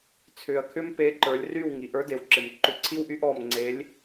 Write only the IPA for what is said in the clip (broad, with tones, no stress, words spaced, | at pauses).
t͡sʰʏː˩ɐ̯kʰʏ˥m pe˨˥ǃə˞˩˧lʲry˥˩w ŋi˩ʔə˞˨˥de˩˧wǁɪ˩m ǃʏ˨˥ǀʰi˥wʔy˥ʔɔː˥˩m ŋ͡ǀe˨˥lʲ